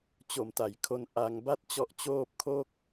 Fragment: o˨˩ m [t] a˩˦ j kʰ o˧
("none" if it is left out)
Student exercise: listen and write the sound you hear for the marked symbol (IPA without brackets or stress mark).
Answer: t